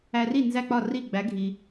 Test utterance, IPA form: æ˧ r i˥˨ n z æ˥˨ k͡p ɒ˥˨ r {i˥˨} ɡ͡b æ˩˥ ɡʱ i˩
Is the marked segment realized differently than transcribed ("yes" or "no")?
no